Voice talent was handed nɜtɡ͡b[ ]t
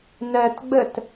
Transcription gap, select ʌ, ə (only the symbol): ə